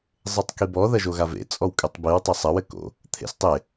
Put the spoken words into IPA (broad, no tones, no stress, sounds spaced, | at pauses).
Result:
zˤ e tˤ k i b ɔ ð ɐ ʒ o ɣ a v ḛ t͡sʼ ɔ w kʼ ɨ tˤ b i w tˤ ɐ sˤ ɐ w ɘ k o̰ | t̪ʰ ḛ s tˤ e